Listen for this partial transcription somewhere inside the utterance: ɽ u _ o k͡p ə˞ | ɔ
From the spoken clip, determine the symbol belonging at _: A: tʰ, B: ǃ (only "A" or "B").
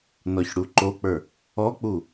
B